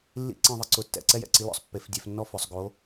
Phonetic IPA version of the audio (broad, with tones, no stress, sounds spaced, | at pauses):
lː ḭ˥˧ ǀ ẽ˥˧ ðˤ ɪ˦˥ ǀ ʊ˨˦ tː ɛ̰˧˩˧ ǀ ɛ˥˧ j ɛ̰˨˦ ǀ i˨˦ l ɔ̰˧˩˧ sˤ pː e˧˩˧ f dʲ ɛ˧˩˧ f nː ɔ˥˧ f ʊ˧˩˧ sˤ ɡ o˨˦